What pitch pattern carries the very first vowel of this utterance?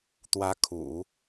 rising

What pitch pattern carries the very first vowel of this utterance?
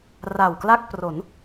low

